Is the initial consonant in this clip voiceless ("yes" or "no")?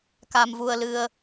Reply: yes